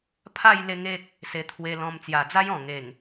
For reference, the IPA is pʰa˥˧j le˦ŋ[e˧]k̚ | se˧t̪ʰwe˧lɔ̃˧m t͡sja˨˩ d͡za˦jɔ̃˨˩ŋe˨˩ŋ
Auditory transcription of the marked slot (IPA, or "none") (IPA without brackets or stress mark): e˦